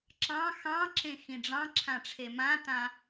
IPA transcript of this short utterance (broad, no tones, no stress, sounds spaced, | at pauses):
ǁ ɑ̃ x ɑ̃ ǁ ẽ x ĩ ɖ͡ʐ ɑ̃ ǁʰ ã ʈ͡ʂʰ e m ã t ã